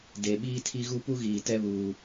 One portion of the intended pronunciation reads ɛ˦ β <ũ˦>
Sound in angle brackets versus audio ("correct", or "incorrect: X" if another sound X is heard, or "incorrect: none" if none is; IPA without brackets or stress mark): incorrect: u˦